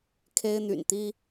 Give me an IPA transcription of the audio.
kʰ e˥ ɪ̯ n̪ y̰˨˩ n t̪ i˥

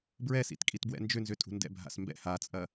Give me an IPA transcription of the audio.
b ɹ ɛ s ḭ t kʼ i t b w ɛ̰ n d͡ʒ ʏ n z ʏ tʼ ṳ n d ɛ̰ bʱ a̰ s m b ɛ̰ h a t͡sʼ ɐ

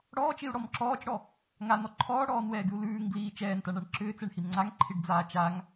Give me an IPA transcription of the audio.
ɽ ɔː t͡ʃ i u̯ ɽ ɔ m ǁ ɔː t͡ʃ ɽ ɔ | ŋ a n ɔ ǃʰ ɔː ɽ ɔː n w ɛː ɡ ʉ u̯ l ʉː ŋ ɡ l iː t͡ʃ ɛː n t a ɳ a ɳ ǁ ʏː t͡s ɛ ɳ h i m ŋ͡ǀ a ŋ ǃʰ i ɖ d͡z aː t͡ʃ a ŋ

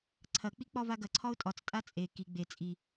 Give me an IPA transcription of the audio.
ǀʰ ɐ k͡p i k͡p ɒ v a ɡ ɐ ǀʰ ɒ ʊ̯ tʼ ɒ t͡s tʼ a t͡sʼ e k i ɡ͡b e t͡sʼ i

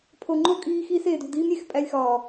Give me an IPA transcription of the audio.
pʰ o˨ ŋ͡ǃ o˦ kʼ iː˦ x iː˦ s eː˨ d ṳ˨ d iː˦ m ɾʲ e˨ x pʼ æ˦ lʲ x ɒː˨

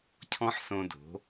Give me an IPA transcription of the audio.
cʰ ɔ̃˦ ħ s õ˧ d o̤˨˦

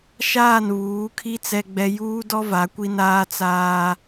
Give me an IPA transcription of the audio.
ʃ aː˦˨ n β uː˨˦ kʰ i˦ t͡s ɛ˦ ɡ͡b ɛ˦ j uː˦ d ɔ˦ v a˨˦ kʷ i˦ n aː˦ t͡s aː˦

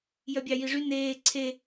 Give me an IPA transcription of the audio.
j œ bʲ ɑ j i ʐ y n eː ǀʰ e

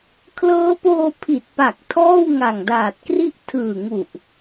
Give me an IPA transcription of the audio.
kʰ l ɤː˦˥ p oː˧ pʰ i˨˩ t̚ p a˨˩ k̚ tʰ ɔː˥˩ w ŋ a˨˩ ŋ d aː˨˩ t̚ k r i˥˩ ʔ tʰ ɯː˨˩ ŋ u˨˩ ʔ

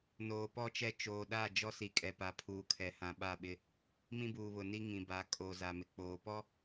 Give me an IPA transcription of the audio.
n oː˨ p ɔ˦ t͡ʃ ɛ˦ t͡ʃ oː˨ ɗ a˦˨ d͡ʒ ɔ˦ s i˨ kʼ ɛ˨ p a˨ pʰ uː˨ kʰ ɛ˨ h ã˨ ɓ a˦˨ ɓ ɪ˦ | m ĩ˦ b uː˨ β ʊ˨ n i˦ ŋ ĩ˨ b a˨˦ kʼ o˨ z a˨ m ɪ˨ k͡p oː˨ p ɔ˦

